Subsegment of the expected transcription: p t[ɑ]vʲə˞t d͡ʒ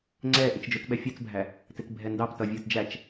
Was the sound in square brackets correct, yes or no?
no